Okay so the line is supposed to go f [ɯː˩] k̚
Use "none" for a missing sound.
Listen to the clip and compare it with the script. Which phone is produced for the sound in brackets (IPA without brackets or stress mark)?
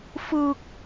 ɯː˧